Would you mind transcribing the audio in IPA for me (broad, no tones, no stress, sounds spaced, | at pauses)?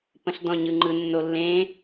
p ə̃ ɬ d ɔ̃ ɲ ɯ ŋ͡ǃ ɯ nː o lː ẽ